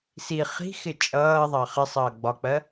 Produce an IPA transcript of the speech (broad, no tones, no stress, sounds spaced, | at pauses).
s i χ i̤ x ɪ t͡ʃʼ ʌː ðˤ ɑ χ ɪ sˤ ʌː ɡ͡b ɒ k͡p ɜ